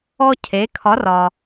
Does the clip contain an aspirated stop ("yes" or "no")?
yes